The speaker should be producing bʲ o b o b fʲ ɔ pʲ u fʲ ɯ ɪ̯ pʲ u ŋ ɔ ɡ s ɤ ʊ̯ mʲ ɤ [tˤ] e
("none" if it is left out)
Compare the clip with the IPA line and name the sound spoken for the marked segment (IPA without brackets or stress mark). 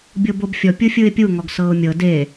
d